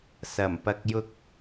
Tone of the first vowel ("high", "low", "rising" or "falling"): low